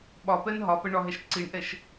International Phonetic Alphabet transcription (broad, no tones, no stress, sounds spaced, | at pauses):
ɓ ɒ p ɛ n ɦ ɒ p ɛ ɳ ɒ ɦ ɛ ʃ ǀ i ɳ ʔ ɛ ʃ